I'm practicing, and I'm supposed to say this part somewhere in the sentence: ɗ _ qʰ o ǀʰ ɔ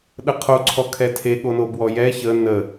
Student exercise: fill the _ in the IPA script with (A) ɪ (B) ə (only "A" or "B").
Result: B